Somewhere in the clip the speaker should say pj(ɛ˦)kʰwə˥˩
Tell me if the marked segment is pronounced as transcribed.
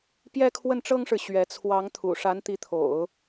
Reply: no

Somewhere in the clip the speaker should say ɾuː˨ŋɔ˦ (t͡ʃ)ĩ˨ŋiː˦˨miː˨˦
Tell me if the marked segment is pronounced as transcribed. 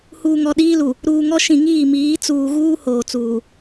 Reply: no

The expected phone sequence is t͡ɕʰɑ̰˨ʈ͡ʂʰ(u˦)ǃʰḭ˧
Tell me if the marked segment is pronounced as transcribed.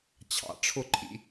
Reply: no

